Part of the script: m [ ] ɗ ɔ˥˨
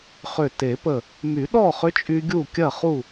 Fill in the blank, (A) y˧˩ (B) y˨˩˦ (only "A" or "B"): B